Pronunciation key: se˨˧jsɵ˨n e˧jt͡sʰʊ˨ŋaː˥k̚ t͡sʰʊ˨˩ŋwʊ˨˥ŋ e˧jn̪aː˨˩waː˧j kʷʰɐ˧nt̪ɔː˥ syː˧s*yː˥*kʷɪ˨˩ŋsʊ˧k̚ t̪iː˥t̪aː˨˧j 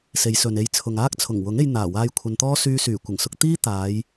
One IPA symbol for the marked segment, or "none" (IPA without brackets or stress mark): yː˨˩